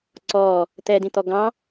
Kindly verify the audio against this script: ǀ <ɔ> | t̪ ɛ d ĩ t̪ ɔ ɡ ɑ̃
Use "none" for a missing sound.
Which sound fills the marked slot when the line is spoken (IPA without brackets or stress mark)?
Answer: ɔ